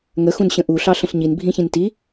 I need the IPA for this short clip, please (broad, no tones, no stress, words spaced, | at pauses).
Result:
ŋəxũnɕə̃ ʔuɬɑɬə̃ɬ ɲinbʱĩçĩn ti